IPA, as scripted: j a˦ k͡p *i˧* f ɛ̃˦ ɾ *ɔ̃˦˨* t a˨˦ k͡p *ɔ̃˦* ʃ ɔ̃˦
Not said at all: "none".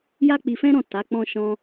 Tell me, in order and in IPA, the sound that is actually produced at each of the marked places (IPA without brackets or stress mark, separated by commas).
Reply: i˧, ɔ̃˦˨, ɔ̃˦